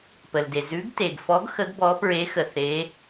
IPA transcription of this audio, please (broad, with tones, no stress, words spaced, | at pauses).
pə˩lde˩ zʉ˨˦ɡte˩ɡfɔ˨˦ɡ xə˨˦ɡbɔ˨˦pɹe˨˦ xə˩θe˨˦